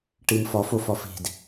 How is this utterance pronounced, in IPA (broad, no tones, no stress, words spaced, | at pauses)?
ʈimfɒfo fɒfi̤d